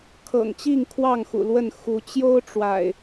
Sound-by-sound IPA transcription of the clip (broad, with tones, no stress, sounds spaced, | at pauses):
kʰ ɤ̰˨˩ ŋ t͡ɕ i˥˨ ŋ kʰ w ɑ˥˨ ŋ x ṵ˨˩ l w ə˥˨ n x u˨˦ t͡ɕ j o˦ ʊ̯ ʈ͡ʂ w a̰˨˩ ɪ̯